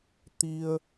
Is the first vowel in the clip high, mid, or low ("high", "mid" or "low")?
high